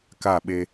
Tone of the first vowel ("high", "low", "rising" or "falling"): falling